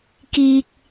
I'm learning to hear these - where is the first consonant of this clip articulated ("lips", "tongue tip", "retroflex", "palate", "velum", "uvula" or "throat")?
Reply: velum